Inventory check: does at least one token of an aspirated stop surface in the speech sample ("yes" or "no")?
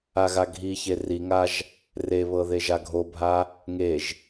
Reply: no